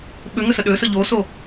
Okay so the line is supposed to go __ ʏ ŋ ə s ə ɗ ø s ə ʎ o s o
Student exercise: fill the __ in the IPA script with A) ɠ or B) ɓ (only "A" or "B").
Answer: B